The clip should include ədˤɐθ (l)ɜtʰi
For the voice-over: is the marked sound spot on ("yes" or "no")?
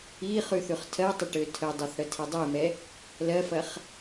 no